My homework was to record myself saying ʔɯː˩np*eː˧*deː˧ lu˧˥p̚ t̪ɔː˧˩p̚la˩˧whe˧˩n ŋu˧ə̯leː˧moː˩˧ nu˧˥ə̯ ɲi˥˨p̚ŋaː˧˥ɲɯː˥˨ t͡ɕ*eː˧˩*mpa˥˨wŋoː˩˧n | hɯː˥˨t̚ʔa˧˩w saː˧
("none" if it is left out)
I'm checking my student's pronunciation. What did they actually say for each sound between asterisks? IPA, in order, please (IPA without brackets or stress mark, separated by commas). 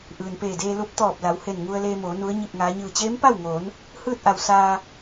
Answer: eː˧˩, eː˧˥